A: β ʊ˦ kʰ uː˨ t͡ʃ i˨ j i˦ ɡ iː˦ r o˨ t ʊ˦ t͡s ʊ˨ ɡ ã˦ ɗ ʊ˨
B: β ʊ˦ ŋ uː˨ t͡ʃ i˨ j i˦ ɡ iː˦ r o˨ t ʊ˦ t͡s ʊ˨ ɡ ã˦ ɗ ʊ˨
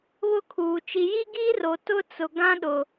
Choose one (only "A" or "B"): A